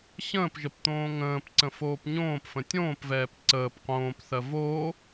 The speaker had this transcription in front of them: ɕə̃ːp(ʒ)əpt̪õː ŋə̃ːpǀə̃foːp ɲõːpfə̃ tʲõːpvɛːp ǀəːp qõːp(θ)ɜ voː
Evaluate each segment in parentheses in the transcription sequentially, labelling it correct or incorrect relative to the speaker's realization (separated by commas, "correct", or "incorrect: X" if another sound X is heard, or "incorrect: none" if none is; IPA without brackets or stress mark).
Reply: correct, correct